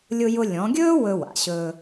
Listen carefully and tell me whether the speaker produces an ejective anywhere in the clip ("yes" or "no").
no